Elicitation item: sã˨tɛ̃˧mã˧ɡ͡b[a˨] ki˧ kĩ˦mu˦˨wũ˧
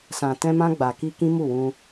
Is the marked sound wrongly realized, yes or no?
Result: no